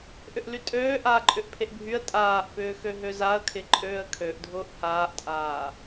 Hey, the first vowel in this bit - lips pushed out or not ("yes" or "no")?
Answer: yes